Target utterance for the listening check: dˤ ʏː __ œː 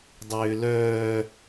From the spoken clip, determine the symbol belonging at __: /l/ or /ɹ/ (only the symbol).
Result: l